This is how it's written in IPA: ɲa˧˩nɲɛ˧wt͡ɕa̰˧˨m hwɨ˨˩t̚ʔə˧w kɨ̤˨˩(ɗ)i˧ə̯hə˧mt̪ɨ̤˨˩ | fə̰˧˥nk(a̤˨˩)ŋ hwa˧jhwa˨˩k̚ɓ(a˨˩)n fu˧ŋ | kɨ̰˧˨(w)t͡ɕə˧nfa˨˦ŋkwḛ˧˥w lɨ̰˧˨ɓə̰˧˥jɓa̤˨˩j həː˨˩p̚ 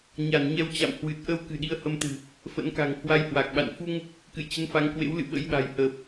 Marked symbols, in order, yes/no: yes, yes, no, no

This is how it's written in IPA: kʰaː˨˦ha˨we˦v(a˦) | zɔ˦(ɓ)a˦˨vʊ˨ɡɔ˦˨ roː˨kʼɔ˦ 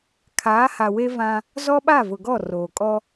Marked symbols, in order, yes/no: no, yes

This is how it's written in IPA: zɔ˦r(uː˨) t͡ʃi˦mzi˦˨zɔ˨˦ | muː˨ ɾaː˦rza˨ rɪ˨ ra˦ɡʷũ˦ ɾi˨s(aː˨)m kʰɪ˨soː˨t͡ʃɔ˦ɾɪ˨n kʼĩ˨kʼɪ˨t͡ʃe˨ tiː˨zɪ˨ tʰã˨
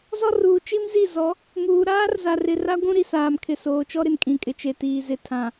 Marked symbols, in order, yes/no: yes, yes

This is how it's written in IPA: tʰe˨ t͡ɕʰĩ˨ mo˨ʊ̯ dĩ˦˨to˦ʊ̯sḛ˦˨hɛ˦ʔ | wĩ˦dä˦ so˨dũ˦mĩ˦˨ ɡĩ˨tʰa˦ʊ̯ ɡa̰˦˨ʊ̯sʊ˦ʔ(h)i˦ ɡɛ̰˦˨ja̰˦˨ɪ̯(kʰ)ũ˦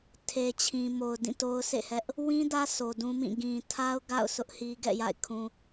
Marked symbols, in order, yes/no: yes, yes

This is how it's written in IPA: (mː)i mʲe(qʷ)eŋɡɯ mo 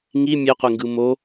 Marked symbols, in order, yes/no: no, yes

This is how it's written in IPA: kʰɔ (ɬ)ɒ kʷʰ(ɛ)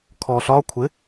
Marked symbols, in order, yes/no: yes, no

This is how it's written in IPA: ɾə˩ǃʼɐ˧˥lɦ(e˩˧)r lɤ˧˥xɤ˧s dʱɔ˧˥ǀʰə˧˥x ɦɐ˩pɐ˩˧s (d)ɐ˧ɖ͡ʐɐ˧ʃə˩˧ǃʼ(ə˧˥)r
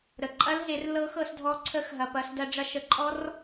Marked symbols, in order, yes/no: yes, yes, no

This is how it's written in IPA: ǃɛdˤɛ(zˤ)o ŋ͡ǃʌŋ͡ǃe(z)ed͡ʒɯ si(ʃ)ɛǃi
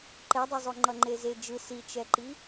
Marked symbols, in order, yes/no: yes, yes, no

